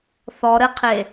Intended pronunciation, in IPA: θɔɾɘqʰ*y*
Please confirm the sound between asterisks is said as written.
no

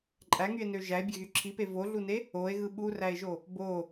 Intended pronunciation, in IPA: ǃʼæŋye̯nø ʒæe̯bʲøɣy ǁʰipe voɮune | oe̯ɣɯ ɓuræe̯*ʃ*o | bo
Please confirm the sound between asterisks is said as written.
no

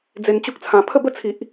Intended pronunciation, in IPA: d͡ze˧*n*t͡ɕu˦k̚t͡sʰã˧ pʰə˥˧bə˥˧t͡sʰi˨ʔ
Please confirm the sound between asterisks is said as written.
yes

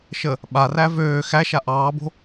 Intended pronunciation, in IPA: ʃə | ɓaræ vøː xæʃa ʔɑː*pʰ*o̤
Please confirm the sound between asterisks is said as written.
no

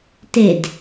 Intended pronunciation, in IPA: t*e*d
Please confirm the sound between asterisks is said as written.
yes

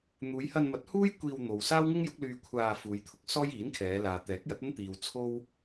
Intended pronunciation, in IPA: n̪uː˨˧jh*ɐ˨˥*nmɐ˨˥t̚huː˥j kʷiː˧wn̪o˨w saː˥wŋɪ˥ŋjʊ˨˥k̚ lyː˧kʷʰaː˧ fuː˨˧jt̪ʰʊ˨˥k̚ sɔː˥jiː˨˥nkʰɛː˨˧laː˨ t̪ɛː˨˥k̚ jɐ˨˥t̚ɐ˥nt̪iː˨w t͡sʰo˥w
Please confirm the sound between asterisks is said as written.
no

